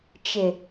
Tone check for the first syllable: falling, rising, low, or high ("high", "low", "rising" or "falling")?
low